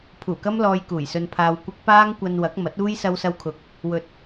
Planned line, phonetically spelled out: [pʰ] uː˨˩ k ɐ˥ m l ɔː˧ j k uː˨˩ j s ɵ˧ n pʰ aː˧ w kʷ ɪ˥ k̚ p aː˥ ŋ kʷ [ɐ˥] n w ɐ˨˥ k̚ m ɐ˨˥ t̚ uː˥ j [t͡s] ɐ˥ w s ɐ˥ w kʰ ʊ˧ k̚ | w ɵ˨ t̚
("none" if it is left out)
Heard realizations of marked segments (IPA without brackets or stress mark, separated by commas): pʰ, ɐ˧, s